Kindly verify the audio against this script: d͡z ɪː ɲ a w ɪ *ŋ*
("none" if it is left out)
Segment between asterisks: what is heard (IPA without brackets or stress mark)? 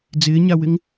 ŋ